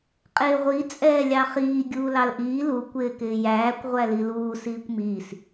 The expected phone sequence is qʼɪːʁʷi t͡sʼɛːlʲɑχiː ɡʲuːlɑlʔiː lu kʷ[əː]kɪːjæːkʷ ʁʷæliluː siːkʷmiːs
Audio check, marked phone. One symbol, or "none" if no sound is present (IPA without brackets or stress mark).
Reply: ɪː